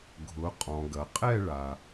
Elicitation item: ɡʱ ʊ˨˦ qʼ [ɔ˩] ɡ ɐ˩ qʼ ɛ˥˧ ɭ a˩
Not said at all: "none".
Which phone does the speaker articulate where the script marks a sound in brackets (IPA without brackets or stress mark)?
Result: ɔ̃˩